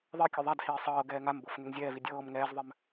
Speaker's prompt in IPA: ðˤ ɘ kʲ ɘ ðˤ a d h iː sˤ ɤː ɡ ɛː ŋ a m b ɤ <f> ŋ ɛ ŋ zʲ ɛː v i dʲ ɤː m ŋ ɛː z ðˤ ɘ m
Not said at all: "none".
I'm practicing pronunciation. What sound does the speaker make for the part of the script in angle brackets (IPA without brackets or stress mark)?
f